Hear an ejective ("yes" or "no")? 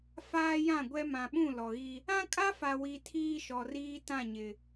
yes